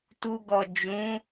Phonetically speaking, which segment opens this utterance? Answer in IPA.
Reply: t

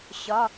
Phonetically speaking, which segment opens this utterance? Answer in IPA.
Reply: ɕ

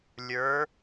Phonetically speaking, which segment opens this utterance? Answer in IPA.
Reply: lʲ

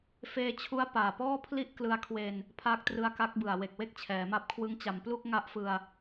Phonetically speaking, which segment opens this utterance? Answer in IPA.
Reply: f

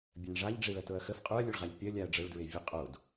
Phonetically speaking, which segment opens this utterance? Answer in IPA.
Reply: bʲ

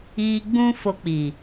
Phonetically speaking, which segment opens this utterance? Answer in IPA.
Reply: i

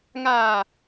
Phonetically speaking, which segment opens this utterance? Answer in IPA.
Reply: ŋ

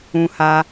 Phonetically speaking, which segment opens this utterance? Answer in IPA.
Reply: ũ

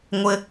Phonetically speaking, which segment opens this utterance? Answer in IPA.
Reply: ŋʷ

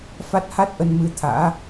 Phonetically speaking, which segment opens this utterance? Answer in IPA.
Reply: f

